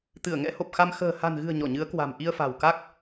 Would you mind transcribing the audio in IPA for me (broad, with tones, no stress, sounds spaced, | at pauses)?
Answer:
t̪ ɨ˧˩ ə̯ ŋ ɛ̰˧˥ h o˨˩ p̚ x a˧ m x ə̤ː˨˩ h a̤˨˩ n ɣ ɨ̤˨˩ ə̯ ɲ ɔ˧˩ ɲ ɨ˨˦ ə̯ k w a̤˨˩ m ʔ i˧ ə̯ f a̤˨˩ w k a˦˥ k̚